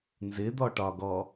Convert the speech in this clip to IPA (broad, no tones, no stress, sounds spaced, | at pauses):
n z ɪ d̪ ɔ ʈ ɒ ɡ ɔ